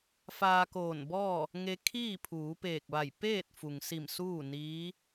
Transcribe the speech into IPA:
f aː˧ k oː˧˩ n b ɔː˥˨ | ŋ e˧ kʰ iː˥˨ pʰ uː˩˧ p eː˧˩ k̚ ʋ a˧˩ j p eː˥˨ t̚ f u˩ ŋ s i˧˩ m s uː˥˨ n iː˧˥

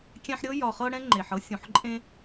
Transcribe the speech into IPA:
kʲ ɛ̃˦ ħ ɾʲ ɤ˥ j ɒ˨ χ ɤ˦ ɽ ɛ̃˦ ŋ͡ǃ e˩ ħ ɤ˥ sʲ ũ˩ ħ ǃʼ ẽ˥

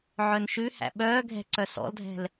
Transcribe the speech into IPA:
ʕ œ n ʃ ʉ h æ̰ ɓ œː ɡʱ ɛ̤ ǀ œ s ɔ̰ l dʱ ɛ̤ l

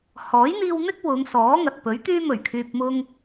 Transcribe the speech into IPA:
h ɔː˨˥ j n̪ iː˧ w n̪ ɪ˥ k̚ w ʊ˨˧ ŋ s ɔː˨˥ ŋ ɐ˨ t̚ p ɵ˨˥ ɥ t̪ yː˥ m ɵ˨˩ ɥ kʰ yː˨ p̚ m ʊ˧ ŋ

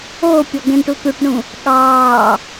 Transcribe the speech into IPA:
oː pʲ ɔ ɡ ɛ̃ ɳ ʈ u t̪ u ʈ ɳ ũ | ɠ ɑː

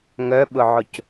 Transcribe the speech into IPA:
ŋ œ ɓ ʊ ʕ ʊ c

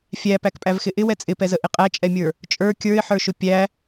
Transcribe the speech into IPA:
fʲ æ p æ k pʼ æ v x ɪ ʔ ɪ w ɛ t͡sʼ ɪ p ɛ z ə ʔ ɪ qʼ æ t͡ʃʼ ɛ mʲ ə˞ | t͡ʃʼ ə˞ kʲ ə˞ ɪ̯ ħ ə˞ ʃ ʊ pʲ æ

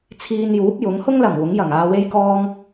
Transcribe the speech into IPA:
t͡sʰ iː˧ n j uː˨˥ p̚ j ʊ˨˥ ŋ h ʊ˥ ŋ l ɐ˨˩ m w ʊ˨˥ ŋ j ɐ˨˩ ŋ aː˧ w e˥ j k ɔː˥ ŋ

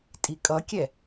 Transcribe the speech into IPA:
tʼ i kʼ ʌ kʲ ɛ

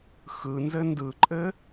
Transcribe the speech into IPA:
x ɯ n z ɘ n d ɯ ǃʼ ɘ

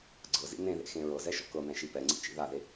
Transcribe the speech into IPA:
ɡ͡ǀ ɤ z ḭ n ẽ ð ḛ x ẽ ɹ ɤ z ɛ ʃ ɔ̰ k ɤ n̪ ɛ̃ ʃ i p ɛ ŋ͡ǀ ḭ t͡ʃ ḭ ð a ð e

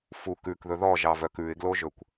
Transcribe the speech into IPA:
f u k ʉ k ð ɵ ð ɔ ʒ ɑ v œ k ʉ ɪ̯ ɡ l o ʒ ɵ kʷ

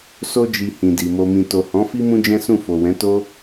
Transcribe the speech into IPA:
s o˦ d͡ʒ i˧ h ĩ˨ d i˨ m o˨ m ĩ˨ t o˨ h ɔ̃˨˦ f i˦ m ũ˦ d͡ʒ ɛ̃˦ s ũ˦˨ f o˨ w ɛ̃˨˦ t o˦

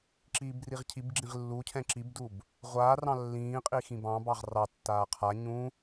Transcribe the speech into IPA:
ǁ iː b r i ʁ cʰ i b ɡ͡ǁ ĩ ʁ lː u cʰ ɛ̃ ǁ i b d u b | ʁʷ aː r ɑ̃ lː ĩː qʼ i x ĩ b ɑ̃ b ɑ ʁ r ɑ tː aː qʰ a ɲ ũ

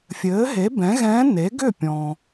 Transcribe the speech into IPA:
fʲ ɘː˩˥ ɦ e˩˥ b ɛ̃˩˥ ɣ ɛ̃ː˧˥ n e˩˥ ɡ ʏ˥˩ pʲ ɔ̃˩

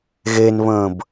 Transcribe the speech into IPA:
ɣ e n β ə̃ː b

